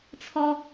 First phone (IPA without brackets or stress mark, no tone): t͡sʰ